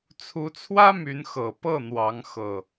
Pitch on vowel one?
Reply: rising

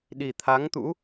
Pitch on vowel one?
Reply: low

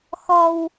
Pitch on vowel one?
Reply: high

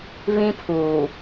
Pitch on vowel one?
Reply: high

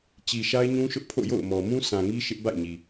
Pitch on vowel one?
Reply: low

